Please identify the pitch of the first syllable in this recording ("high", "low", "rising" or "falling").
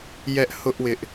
high